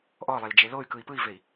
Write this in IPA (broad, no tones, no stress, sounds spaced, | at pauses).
ʔ ɔ lˠ e l d͡ʒ e l o y̯ k ɯ i̯ p ɯ i̯ v e i̯